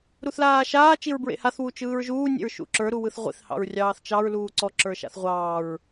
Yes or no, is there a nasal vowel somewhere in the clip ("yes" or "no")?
no